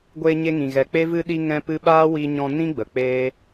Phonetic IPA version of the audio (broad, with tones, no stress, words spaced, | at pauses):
ɡʷeː˧ɲe˧ ŋĩ˨ɣɛ˨k͡pe˦ vɨ˧ɗi˧ ŋɛ̃˦pɨ˦ ɓaː˦wi˧ɲɔ̃˧ nĩ˦ɡ͡bə˨ k͡peː˦